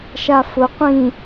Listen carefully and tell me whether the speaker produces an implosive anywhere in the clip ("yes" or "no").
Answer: no